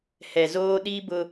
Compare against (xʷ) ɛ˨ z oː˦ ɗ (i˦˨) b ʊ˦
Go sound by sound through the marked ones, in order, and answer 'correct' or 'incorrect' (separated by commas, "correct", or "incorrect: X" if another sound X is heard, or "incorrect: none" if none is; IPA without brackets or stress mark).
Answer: incorrect: h, incorrect: i˦